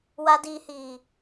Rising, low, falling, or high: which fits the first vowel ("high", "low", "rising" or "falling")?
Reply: low